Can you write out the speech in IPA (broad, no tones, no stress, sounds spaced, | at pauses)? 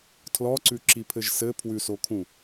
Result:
tʰ l ɔ ǀ ʉ ǁ i pʰ ɘ ʒ s ɘ pʰ w ʉ s o kʰ ũ